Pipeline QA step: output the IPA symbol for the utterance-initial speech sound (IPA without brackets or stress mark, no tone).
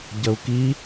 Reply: ɟ